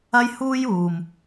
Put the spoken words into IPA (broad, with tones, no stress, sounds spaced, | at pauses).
ɐ˥ j h uː˥ j uː˨ m